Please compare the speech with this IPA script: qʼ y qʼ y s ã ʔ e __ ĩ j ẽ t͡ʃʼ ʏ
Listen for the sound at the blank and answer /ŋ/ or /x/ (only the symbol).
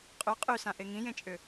ŋ